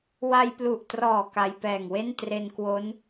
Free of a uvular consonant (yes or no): yes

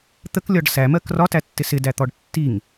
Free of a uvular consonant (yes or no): yes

